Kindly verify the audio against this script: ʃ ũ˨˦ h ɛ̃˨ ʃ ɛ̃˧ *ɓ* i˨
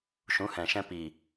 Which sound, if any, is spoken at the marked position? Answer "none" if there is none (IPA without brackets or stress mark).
p